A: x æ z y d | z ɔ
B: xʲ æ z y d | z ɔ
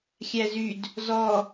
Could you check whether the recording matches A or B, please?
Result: B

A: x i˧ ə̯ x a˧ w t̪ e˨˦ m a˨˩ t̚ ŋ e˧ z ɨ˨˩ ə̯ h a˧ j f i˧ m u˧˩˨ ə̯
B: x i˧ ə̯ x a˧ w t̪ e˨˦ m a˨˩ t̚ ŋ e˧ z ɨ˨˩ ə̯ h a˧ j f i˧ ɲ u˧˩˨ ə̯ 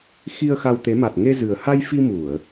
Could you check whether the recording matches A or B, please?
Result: A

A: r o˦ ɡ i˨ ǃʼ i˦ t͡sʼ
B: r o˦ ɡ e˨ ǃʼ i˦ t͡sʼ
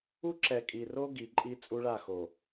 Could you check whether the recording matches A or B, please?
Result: A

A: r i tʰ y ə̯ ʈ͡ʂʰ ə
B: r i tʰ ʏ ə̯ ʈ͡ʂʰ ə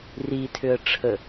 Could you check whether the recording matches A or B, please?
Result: B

